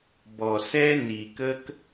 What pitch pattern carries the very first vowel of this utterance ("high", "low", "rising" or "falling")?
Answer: low